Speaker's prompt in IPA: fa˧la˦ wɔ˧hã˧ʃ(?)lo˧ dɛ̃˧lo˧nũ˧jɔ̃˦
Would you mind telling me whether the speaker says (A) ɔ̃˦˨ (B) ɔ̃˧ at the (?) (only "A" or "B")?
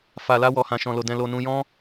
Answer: B